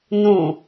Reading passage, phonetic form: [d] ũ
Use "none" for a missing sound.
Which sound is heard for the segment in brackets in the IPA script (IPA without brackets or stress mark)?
n